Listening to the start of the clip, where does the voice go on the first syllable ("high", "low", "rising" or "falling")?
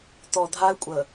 low